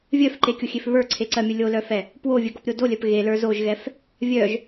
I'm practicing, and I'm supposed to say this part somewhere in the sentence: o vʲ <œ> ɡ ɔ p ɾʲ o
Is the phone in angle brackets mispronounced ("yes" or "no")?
no